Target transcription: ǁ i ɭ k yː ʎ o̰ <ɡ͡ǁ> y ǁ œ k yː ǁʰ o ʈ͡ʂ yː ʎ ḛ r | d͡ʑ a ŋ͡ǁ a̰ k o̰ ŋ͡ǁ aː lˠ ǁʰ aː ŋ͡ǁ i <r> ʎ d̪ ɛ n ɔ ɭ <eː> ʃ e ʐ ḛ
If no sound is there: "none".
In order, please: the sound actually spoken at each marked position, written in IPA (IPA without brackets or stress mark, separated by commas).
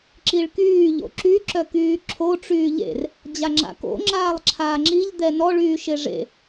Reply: ǁ, none, yː